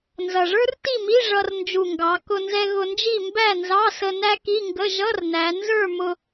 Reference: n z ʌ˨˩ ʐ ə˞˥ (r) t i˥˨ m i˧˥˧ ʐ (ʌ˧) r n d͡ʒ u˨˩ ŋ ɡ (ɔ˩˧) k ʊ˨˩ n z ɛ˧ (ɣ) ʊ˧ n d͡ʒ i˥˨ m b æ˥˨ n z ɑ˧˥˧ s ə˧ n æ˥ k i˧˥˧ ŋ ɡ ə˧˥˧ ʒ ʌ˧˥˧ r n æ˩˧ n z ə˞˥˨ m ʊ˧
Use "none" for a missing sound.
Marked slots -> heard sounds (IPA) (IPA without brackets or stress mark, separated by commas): r, ʌ˧, ɑ˩˧, ɣ